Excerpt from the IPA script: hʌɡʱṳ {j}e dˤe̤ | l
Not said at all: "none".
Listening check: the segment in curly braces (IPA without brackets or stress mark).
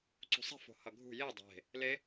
j